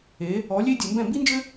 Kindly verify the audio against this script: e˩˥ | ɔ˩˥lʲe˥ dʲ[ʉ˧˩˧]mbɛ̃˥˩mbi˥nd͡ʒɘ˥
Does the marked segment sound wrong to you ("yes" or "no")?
yes